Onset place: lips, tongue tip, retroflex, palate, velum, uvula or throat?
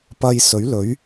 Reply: lips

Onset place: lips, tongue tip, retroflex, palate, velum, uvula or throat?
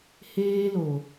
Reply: throat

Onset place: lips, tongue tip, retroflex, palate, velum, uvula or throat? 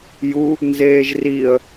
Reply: palate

